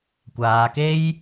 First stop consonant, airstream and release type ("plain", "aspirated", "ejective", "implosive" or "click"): plain